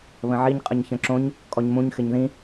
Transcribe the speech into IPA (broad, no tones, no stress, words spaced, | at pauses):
βə̃ʕiɲ qʼəɲçə̃ǁõɲ | kʼɔɲmũɲ xɪɲðĩ